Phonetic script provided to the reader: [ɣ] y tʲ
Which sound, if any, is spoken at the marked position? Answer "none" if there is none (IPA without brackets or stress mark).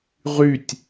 ʁ